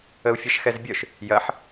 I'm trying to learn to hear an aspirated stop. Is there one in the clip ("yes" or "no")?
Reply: no